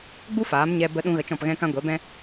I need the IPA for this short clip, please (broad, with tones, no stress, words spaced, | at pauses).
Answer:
ɡ͡bu˦faː˨˦mɲɛ˧ bə˧ɗũ˧ ɣə˧t͡ʃɔ̃˦˨pɣɛ̃˦kã˦ ɡʷɛ˨˦bɛ̃˦